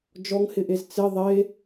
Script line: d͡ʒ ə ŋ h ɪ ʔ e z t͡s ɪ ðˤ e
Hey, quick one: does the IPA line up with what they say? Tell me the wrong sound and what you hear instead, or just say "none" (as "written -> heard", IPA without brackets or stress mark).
ə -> ɔ